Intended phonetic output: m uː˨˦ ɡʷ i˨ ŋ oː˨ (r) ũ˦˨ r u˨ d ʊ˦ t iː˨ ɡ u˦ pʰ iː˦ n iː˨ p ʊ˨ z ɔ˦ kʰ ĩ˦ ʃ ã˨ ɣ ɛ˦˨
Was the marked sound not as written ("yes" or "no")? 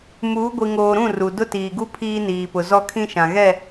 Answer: yes